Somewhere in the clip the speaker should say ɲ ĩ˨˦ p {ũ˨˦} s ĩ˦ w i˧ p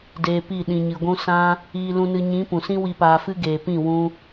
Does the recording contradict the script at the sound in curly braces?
yes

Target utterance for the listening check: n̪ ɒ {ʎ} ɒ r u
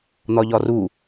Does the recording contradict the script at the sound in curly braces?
no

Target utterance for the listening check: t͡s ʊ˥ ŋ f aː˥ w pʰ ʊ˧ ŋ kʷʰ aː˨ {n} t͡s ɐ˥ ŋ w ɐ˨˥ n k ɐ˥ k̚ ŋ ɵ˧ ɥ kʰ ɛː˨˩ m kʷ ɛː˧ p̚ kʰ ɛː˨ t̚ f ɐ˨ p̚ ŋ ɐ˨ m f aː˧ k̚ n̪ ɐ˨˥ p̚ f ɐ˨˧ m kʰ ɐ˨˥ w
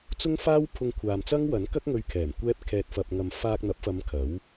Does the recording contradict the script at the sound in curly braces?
yes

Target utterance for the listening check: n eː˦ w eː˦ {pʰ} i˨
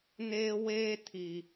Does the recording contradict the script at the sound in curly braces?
yes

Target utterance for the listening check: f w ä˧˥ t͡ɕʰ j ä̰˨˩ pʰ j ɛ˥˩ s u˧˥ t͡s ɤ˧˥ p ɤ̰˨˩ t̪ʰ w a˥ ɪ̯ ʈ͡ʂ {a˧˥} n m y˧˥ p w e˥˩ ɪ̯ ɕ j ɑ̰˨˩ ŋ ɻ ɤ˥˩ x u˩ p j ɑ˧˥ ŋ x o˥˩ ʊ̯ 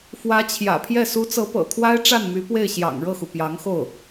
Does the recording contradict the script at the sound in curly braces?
yes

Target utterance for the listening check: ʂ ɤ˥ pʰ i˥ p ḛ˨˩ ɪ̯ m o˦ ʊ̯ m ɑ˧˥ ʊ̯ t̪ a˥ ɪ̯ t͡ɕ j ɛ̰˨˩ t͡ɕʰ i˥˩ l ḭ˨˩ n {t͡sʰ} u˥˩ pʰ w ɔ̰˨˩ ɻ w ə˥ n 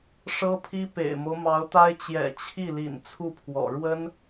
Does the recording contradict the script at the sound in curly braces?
no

